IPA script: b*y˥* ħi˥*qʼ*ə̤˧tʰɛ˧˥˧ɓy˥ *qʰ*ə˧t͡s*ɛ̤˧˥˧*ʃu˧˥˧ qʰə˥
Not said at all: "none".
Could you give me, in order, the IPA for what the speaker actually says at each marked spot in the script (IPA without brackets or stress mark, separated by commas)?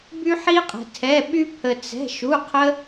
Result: y˥, qʼ, pʰ, ɛ̤˧˥˧